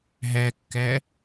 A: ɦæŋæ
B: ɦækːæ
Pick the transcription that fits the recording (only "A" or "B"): B